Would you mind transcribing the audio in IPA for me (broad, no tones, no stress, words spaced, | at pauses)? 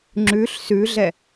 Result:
ŋ͡ǁʉɬ sʉɮɛ